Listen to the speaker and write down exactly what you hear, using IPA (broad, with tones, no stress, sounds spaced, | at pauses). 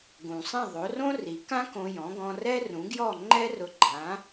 ɡ ũ˩ sˤ ĩ˥˩ ðˤ o˩˥ r õ˥ r i˩˥ k ã˥ k õ˧ j ɔ̃˩˥ ɡ ɔ̃˧ r ɛ˥ r ũ˩˥ ɡ j ɔ˥˩ ŋ͡ǃ ɛ˥ r ʊ˧ ɡ͡ǃ ã˩˥